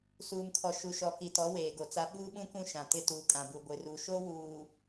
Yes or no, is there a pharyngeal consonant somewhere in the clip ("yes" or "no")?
no